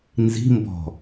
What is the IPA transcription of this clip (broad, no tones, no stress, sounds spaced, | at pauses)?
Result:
n z i̤ m b ɔ̤